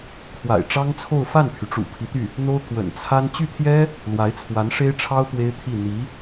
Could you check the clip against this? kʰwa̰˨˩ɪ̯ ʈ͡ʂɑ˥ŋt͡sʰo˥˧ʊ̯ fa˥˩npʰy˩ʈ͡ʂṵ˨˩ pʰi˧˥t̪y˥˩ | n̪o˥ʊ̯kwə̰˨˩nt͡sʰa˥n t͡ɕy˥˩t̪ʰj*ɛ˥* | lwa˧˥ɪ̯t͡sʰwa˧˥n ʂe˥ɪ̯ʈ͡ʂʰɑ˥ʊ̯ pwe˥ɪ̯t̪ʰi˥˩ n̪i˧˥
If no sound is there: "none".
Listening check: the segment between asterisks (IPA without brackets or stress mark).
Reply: ɛ˥